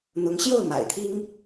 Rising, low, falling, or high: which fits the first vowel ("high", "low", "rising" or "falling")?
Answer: rising